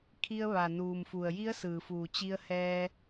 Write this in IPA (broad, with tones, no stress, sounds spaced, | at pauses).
kʰ i˧ ə̯ ʋ a˩ n uː˩ m f u˩ ə̯ j i˧˥ ə̯ s ɯː˩ f uː˩ t͡ɕ i˧ ə̯ h ɛː˧